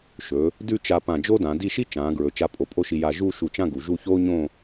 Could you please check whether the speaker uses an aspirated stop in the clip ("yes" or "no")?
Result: no